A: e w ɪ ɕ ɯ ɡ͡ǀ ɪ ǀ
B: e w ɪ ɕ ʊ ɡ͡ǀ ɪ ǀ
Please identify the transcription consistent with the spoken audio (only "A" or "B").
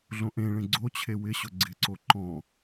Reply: B